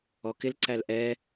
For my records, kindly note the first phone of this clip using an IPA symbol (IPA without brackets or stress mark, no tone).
ɔ